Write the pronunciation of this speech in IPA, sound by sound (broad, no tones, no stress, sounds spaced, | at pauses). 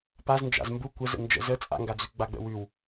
p a z n d͡ʒ a̰ z m b u kʷ ə z ə̰ n d͡ʒ ə̰ z ə t͡sʼ a̰ ŋ ɡ a d͡z ʉ ɡ͡b a ɡ͡b ə̰ w ʉ w